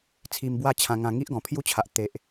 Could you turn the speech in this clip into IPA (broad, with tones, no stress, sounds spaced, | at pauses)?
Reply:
t͡sʰ i˧ m b w a˥˧ t͡ɕʰ ã˧ ŋ ã˧ ŋ i˦ ʔ ɡ ɔ̃˨˩ pʰ j u˦ t͡ɕʰ a˨ ʔ t̪ e˨ ʔ